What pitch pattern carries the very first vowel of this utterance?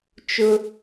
high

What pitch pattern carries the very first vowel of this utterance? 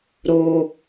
low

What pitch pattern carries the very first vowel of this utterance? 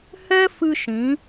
high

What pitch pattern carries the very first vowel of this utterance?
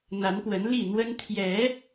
rising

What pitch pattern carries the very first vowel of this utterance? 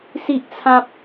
high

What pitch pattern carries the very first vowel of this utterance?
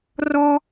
high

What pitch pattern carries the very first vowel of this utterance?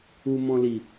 low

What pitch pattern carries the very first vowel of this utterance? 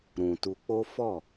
low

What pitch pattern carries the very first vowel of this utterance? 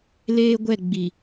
high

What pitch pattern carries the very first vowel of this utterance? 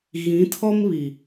rising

